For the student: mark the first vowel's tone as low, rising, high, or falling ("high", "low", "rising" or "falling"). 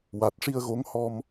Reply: low